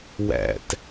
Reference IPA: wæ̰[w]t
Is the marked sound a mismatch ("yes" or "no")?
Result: yes